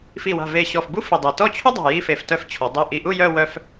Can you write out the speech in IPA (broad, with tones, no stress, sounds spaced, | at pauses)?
f i˧˩ w a̤˧˩ v e˧˩ ɕ ɔ˧˩ f b u˥ f i˧˩ dˤ e˧˩ t ɔ˥˧ t͡ɕʰ u˥ dˤ a̤˧˩ j i˧ f e˧ f t œ˥˧ f t͡ɕʰ ɔ˩˧ dˤ œ˧˩ ʔ i˧˩ ʔ u˥˧ j œ˥˧ w œ˥ f